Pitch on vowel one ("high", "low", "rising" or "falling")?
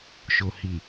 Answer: low